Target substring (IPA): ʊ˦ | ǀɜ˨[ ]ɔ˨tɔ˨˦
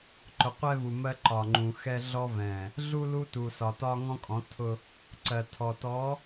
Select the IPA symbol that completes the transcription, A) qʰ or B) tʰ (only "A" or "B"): B